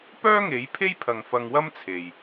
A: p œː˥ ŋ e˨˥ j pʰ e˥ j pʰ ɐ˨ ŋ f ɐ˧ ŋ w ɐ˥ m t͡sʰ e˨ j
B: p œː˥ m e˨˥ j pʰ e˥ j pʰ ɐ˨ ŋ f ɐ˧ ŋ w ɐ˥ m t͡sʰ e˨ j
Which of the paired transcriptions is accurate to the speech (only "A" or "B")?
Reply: A